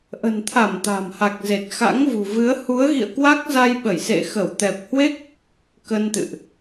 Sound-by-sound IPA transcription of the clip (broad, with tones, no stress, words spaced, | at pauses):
ʔə̤˨˩n t̪ʰa˧˩m t̪a̤˨˩mha˨˩k̚ ze˨˩t̚xa̰˧˥ŋvṳ˨˩vɨ˨˦ə̯ hu˨˦ə̯ɣḭ˧˨ə̯ kwa˦˥k̚za˧jɓə˧˩jsḛ˧˨ xə˧˩w t̪ɛ˨˩p̚hwe˦˥k̚ | kə˧nt̪ɨ̰˧˨ʔ